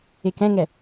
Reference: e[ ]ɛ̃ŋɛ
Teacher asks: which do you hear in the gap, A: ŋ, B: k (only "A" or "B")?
B